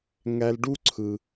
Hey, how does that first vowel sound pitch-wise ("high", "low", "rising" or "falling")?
high